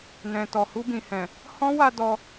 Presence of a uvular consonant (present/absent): absent